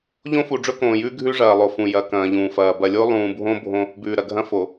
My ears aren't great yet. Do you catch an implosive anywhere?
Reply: no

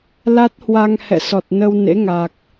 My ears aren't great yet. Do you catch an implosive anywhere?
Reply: no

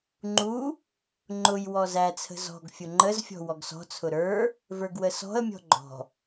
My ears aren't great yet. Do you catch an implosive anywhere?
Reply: no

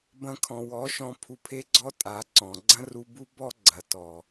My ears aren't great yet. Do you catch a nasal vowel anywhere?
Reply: yes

